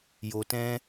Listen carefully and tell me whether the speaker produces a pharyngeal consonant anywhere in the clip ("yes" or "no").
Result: no